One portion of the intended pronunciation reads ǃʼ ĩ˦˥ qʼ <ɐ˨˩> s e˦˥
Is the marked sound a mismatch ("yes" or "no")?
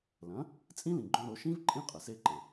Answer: no